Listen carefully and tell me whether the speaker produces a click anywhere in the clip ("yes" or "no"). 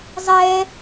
no